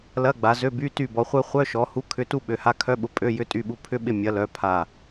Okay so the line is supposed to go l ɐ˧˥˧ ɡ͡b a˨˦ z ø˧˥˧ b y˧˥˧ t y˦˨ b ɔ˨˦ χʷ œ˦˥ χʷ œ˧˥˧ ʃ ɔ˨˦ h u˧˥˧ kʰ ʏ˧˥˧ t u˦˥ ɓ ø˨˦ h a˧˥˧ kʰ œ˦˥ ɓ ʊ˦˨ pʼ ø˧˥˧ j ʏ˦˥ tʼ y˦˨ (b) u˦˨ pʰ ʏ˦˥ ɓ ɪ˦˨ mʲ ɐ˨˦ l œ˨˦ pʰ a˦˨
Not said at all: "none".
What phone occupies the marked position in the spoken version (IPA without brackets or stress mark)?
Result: ɓ